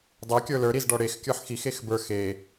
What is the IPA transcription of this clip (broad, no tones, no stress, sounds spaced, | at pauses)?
dˤ ɛ kʲ ə˞ l ə˞ ɾ i z ɖ ɔ ɽ e x kʲ ə˞ ħ x i x e x b ə˞ x e